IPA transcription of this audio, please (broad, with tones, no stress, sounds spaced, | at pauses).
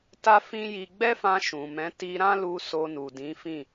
t a˦ f ĩ˦ j i˧ ɡ͡b ɛ˦ f ã˧ ʃ ũ˨ m ɛ̃˨˦ t i˧ ɾ ã˦ l u˧ s o˧ n u˨ d ĩ˨˦ f ĩ˦˨